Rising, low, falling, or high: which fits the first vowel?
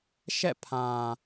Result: falling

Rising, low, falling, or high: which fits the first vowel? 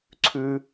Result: high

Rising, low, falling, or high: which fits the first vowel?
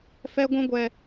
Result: high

